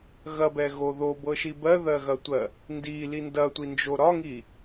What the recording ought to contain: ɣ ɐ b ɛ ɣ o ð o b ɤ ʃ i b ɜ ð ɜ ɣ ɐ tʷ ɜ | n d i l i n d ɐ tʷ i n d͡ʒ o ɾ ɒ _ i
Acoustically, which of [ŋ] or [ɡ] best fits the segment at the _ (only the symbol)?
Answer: ŋ